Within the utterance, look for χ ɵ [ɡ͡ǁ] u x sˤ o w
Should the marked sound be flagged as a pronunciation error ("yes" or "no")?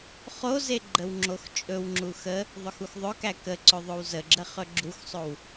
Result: no